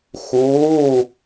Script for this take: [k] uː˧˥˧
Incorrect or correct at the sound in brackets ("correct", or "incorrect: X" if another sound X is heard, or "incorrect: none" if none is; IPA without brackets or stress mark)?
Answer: incorrect: x